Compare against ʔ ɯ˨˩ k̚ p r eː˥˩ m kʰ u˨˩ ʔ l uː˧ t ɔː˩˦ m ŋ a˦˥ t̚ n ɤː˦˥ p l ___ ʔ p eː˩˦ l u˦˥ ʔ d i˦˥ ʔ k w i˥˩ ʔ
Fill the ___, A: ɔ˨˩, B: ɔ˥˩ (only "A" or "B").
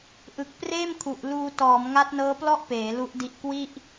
B